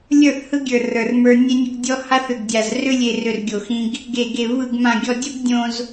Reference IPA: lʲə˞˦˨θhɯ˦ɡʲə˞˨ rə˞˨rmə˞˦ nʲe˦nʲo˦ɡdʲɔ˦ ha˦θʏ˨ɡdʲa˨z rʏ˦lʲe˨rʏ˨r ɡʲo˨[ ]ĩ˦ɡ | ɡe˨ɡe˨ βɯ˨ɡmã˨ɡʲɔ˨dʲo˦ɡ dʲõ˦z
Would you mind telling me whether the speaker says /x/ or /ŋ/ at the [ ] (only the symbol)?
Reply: x